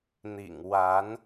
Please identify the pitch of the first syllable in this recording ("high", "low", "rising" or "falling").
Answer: low